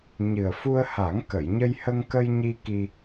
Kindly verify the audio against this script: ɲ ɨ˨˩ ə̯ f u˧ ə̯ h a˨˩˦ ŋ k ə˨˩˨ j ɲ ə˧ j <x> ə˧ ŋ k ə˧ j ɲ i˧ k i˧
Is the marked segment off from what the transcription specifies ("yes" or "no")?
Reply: yes